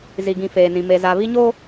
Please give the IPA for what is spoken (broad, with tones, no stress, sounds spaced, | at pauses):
z i˨ ɡ ĩ˨ f eː˨ n ĩ˨ m e˨ z a˨ β i˦ ɲ oː˦